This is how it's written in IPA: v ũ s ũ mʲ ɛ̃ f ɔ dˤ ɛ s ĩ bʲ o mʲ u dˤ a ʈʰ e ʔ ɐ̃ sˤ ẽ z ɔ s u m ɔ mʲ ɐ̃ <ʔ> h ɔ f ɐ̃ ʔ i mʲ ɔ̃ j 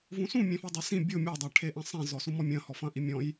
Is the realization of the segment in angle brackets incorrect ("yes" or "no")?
yes